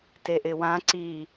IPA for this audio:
t e ʔ ɪ w ã ǀ i

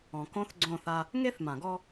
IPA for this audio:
ɔ̃˨ k õ˦ θ ɡ͡ǀ õ˦˨ θ a˦ | ŋ e˦ θ m ã˨ ɡ ɔ˦

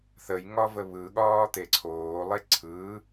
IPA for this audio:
θ ə j ŋ ɒ v ə β ɯ ɠ ɒː t̪ e ǀʰ oː lˠ e ǀʰ ɯː

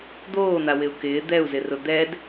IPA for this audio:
d̪ oː n̪ a w ɪ u̯ k ɪː d̪ ɛ u̯ z ɪ r ʊ d̪ ɛ d

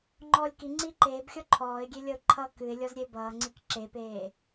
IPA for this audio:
ŋ͡ǃ ɔː lʲ k i ŋ͡ǀ iː ǃ eː b xʲ ɔ ǃʰ ɔː ɪ̯ ɡʲ e lʲ ʌ ʊ̯ ǃʰ ʌ k ɨ ɪ̯ lʲ ɔ z ɾʲ e b ʌː ŋ͡ǀ i k ǁ e p eː

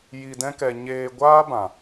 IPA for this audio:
j i˧ d ɛ̃˦ k ɛ˧ ɲ eː˧ ɡʷ aː˦ b ã˨

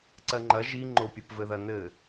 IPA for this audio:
ǀ ɜ ŋ͡ǃ ɐ ʒ i ŋ͡ǃ o pʲ ɘ p v ɘ ð ɐ n ɘ

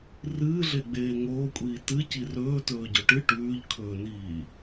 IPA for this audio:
r ɨː ɮ e ɡ͡b eː ŋ oː kʷʼ iː t ɨ c i r ɵː t ɵː ɟ ɵ ʈ ɨ ʈ ʉː ʎ kʰ ɵː n iː

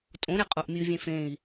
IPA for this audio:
tʼ õ ɾ e qʼ o ʔ mʲ ɨ vʲ ẽ f ẽ i̯

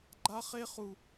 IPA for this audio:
ɡ͡ǃ a˦ χ e˦ χ u˦

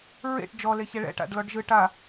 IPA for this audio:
ɹ ḛ ʈ d͡ʒ ɔ l e ç ɛ ɭ ɛ̰ ʈ a̰ ɖ l ɔ ɖ ʒ ɯ ʈ a

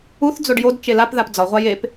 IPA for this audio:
u θ d͡z o ɖ j o d t͡ʃ e l a p ð a p d͡z ɒ ʁʷ a j e p

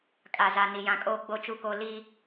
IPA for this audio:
kʼ a˨ z a˨ n i˨ j ã˨ kʼ oː˦ ɡ͡b o˦ t͡ʃ u˦ k o˦ l i˦

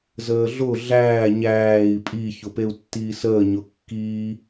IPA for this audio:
z əː ɮ ʊ ɮ æː ɲ æː i̯ pʼ i ç ʊ p e u̯ tː iː s əː ɲ ʊ kː iː

